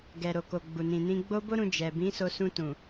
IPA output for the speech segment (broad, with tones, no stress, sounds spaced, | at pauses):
ɡ ɛ˨ ɾ o˨ k o˨ ɡ͡b u˨ n ĩ˨ n ĩ˧ ɡ͡b o˦ b o˦ ɾ ũ˧ d͡ʒ ɛ˨ b ĩ˨˦ s o˧ s ũ˧ t ũ˨